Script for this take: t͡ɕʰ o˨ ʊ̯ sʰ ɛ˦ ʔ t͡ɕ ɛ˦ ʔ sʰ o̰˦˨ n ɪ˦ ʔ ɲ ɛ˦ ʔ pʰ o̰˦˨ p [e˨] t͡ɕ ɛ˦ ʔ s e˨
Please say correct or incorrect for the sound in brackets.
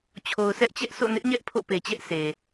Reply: correct